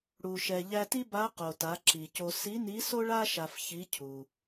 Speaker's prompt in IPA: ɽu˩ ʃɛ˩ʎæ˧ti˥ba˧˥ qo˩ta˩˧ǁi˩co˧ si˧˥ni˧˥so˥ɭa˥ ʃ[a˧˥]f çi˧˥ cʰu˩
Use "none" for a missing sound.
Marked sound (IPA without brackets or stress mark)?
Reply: a˧